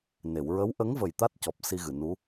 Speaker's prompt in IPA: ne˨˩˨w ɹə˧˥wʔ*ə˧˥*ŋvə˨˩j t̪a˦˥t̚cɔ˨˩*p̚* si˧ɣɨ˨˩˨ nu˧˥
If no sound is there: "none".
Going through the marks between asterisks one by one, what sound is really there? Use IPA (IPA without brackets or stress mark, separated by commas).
ə˧˥, p̚